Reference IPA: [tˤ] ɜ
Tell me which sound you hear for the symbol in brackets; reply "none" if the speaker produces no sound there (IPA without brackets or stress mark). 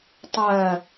tˤ